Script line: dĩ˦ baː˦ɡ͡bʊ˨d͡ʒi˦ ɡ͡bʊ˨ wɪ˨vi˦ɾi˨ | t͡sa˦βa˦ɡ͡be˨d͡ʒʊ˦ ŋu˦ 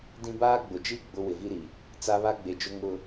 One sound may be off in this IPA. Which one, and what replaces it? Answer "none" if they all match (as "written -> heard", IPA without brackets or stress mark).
u˦ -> ʊ˦